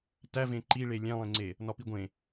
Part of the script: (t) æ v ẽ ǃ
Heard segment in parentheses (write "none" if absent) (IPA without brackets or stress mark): t